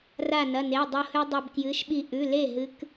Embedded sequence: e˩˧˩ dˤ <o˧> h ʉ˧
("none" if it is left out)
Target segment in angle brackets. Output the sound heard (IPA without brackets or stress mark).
o˧